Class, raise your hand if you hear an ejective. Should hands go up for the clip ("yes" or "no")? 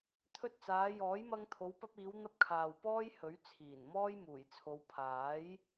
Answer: no